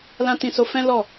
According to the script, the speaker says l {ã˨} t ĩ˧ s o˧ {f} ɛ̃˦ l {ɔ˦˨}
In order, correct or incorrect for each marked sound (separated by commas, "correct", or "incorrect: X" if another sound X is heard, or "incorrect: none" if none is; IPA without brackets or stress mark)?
incorrect: ã˦, correct, correct